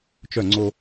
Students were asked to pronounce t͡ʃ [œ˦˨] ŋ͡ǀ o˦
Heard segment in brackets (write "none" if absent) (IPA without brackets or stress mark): œ˦˨